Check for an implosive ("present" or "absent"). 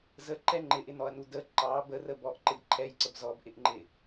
absent